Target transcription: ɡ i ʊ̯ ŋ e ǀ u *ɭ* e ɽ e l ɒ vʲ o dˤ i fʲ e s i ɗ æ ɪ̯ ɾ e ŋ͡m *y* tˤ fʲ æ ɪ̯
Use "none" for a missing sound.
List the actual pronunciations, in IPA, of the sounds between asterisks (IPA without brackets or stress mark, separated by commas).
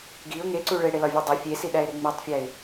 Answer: ɭ, i